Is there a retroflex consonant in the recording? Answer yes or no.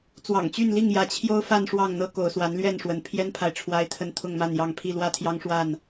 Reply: yes